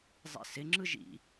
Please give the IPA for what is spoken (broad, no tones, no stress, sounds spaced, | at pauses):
zˤ ḭ s ɪ ŋ͡ǁ ɯ ʒ ḭ